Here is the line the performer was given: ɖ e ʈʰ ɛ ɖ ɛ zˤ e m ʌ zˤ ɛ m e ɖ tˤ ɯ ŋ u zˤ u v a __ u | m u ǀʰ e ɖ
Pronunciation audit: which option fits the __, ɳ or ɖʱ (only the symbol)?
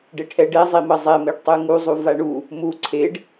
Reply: ɳ